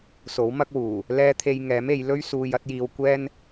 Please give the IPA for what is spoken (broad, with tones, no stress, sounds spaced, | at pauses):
s o˨˥ w m ɐ˥ k̚ w uː˨˩ | l ɛː˥ t̪ʰ e˧ j ŋ ɛː˨˥ m e˨˧ j l ɵ˥ ɥ s uː˧ j ɐ˥ t̚ j iː˧ w kʷ ɛː˥ n